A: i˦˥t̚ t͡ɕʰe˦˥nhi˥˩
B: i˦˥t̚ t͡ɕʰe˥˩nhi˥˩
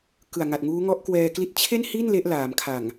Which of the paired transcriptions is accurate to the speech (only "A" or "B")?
B